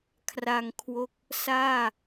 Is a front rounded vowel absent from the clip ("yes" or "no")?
yes